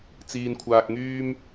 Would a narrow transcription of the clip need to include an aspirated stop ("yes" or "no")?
yes